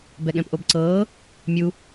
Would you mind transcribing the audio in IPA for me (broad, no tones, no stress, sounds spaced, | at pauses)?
b ɛ ɠ ɛ̃ p ʔ o b ǀ ɤː | mʲ u